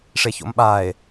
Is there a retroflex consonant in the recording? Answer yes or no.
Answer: yes